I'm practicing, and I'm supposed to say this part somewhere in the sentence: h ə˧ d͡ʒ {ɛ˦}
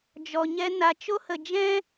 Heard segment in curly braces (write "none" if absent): ɛ̃˦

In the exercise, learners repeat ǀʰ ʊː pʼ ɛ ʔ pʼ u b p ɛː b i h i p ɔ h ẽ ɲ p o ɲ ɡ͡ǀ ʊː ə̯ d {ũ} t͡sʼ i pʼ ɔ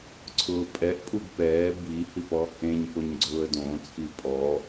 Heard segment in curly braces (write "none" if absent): õ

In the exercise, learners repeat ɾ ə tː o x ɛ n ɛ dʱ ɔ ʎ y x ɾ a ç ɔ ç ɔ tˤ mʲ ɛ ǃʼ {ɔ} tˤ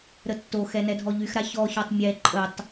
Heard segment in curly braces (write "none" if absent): ə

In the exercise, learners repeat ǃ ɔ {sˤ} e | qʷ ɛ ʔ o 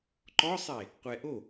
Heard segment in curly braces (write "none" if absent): sˤ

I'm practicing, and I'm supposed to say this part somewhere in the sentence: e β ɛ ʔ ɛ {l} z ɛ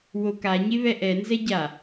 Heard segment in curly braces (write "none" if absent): n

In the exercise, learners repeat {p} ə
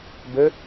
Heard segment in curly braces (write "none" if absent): b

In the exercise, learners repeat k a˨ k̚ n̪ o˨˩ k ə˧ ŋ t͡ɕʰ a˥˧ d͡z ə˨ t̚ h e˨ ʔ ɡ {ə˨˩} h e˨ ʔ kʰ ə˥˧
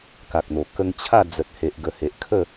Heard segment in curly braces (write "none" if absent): ə˨˩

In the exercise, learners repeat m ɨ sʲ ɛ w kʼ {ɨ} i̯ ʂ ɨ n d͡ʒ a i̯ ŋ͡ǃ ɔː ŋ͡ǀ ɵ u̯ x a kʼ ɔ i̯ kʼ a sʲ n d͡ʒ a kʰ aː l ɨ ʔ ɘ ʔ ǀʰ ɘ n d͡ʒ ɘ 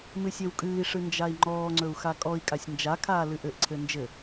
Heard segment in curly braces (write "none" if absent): ɨː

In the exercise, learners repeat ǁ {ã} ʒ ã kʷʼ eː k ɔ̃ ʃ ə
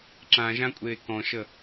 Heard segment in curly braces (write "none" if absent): ã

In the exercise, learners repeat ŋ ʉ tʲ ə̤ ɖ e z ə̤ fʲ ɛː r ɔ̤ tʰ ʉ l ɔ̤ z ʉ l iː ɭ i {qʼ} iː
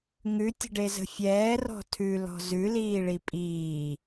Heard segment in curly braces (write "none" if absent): pʼ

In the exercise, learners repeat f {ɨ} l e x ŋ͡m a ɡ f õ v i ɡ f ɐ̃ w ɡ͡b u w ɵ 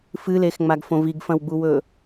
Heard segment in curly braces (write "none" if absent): ɨ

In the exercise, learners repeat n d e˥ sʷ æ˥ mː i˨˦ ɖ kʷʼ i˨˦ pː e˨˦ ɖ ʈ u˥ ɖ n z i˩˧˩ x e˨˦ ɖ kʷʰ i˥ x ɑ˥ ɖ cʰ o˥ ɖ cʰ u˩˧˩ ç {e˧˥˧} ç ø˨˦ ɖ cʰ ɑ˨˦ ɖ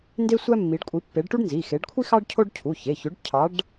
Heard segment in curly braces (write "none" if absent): e˩˧˩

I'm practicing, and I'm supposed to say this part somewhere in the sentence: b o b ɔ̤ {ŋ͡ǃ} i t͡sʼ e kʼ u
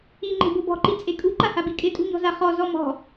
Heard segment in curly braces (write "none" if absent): ǃ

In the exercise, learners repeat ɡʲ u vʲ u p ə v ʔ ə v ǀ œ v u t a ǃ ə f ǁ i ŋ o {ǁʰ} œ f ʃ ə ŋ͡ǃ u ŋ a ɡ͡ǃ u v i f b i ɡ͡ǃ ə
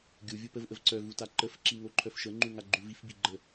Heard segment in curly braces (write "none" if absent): ǃʰ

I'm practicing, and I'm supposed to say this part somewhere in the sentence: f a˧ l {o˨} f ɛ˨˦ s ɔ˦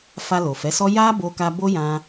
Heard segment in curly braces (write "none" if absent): o˨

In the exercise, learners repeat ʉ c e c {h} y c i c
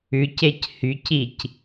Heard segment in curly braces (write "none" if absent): h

